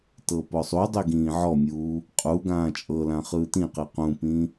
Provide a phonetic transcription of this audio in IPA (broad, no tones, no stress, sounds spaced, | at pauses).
t ɤ p ɔ sˤ u dˤ i ɡ ĩː ʕ ɔ mʲ uː | qʼ u ɡ ãː t͡ʃʼ ɤ l ã χ ɯː t ĩ q i q ũ p ĩ